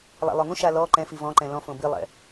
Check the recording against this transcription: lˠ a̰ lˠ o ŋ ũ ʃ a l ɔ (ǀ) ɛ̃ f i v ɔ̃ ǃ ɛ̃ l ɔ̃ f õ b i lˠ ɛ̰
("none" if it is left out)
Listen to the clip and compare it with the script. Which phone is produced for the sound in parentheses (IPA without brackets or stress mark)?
ǃ